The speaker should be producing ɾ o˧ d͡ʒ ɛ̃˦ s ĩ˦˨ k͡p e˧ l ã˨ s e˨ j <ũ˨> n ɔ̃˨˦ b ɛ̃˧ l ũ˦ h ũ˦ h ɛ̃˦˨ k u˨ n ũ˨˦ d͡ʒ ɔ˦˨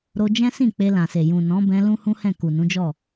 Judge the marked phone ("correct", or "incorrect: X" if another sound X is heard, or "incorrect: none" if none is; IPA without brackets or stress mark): correct